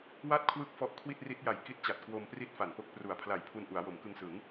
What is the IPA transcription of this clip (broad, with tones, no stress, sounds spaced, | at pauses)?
w a˥˩ t̚ kʰ w ɯ˦˥ k̚ f ɔ˦˥ ʔ kʰ w i˥˩ t̚ r i˦˥ t̚ j a˨˩ j k i˦˥ t̚ t͡ɕ a˨˩ t̚ k w o˧ m p r i˥˩ t̚ f a˨˩ n p o˥˩ k̚ p r u˨˩ a̯ pʰ l a˨˩ j pʰ u˧ n ʔ u˩˦ a̯ w o˩˦ m k ɯ˧ ŋ s ɯ˩˦ ŋ